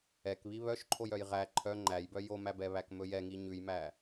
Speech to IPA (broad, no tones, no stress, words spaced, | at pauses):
ɛk βiβœʃǃʰojœj ʁæ ǃʰœ ŋ͡ǃæjbœ jomæbɛ βækmɵjɛŋi ɲʉjmæ